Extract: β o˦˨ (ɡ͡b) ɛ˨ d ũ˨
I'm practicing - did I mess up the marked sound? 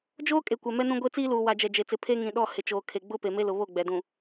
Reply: no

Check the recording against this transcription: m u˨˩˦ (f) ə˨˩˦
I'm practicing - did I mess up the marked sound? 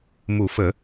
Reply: no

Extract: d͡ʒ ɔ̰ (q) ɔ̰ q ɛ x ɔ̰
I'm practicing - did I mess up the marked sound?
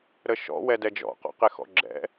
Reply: no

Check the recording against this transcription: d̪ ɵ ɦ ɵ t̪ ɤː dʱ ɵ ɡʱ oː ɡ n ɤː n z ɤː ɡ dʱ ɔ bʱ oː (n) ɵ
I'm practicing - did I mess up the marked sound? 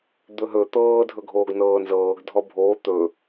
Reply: yes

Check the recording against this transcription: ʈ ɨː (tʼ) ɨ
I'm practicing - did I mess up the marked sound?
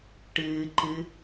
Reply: yes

